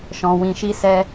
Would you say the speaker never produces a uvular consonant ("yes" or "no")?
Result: yes